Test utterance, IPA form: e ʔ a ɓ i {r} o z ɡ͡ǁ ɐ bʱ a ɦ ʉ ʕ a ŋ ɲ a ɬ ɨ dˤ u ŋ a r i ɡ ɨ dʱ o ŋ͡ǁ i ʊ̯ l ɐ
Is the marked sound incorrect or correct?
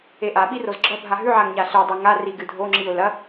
correct